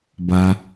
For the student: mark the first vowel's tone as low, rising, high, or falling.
high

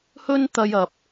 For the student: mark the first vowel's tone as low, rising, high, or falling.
high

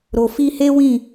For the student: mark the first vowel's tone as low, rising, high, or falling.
low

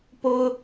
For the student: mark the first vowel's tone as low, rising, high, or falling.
high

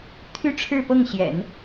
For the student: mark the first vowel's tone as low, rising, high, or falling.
high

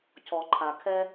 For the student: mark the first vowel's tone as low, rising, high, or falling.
low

